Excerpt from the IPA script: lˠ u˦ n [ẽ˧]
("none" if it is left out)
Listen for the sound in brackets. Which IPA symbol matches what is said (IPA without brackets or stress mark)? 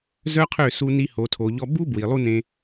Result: ẽ˧